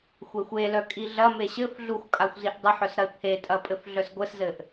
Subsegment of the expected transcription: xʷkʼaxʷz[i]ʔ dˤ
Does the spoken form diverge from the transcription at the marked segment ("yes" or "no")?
no